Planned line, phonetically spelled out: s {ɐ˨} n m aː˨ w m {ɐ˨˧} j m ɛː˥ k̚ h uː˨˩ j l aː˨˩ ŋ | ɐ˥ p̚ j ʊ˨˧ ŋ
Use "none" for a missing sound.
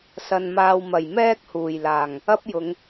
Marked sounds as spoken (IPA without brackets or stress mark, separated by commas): ɐ˨, ɐ˨˩